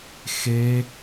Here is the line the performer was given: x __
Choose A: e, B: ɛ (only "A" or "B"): A